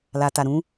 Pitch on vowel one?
low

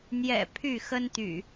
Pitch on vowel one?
low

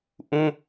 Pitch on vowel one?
high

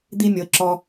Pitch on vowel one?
high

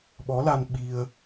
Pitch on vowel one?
rising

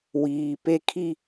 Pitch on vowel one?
low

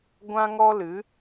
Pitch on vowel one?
high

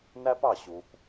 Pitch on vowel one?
high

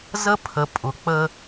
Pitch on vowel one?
high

